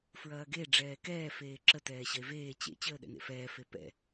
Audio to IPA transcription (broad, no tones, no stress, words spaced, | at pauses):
fɹɐːɡe ɖ͡ʐɛːkɛː feːǁə tɛːɕɐe̯veː t͡ɕḛ t͡ɕəːɗɛ̰nḛfɛː fepɛ̰